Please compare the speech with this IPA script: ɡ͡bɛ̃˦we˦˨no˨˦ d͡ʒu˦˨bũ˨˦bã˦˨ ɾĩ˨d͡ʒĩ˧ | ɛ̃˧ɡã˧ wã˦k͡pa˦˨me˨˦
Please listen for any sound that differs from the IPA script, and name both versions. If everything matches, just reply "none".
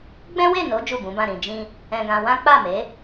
none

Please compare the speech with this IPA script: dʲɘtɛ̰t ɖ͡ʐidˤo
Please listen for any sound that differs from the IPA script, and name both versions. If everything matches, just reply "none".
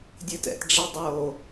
none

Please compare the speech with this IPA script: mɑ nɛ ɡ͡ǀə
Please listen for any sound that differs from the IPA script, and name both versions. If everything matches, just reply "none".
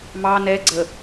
none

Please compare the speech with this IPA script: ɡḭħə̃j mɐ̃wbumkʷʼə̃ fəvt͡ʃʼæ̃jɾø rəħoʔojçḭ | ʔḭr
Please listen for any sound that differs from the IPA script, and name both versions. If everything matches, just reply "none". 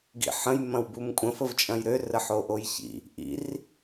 æ̃ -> ɐ̃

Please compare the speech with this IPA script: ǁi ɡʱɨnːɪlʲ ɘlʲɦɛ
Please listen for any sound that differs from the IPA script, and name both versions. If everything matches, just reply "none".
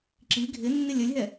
ɨ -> ɪ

